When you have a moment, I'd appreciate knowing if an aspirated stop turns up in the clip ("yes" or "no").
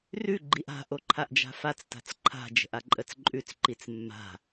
yes